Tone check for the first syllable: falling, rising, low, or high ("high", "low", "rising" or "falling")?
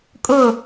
falling